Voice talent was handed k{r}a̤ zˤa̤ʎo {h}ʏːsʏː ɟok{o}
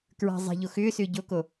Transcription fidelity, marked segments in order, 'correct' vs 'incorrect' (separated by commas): incorrect, incorrect, correct